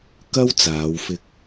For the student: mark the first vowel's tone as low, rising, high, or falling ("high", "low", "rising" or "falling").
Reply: high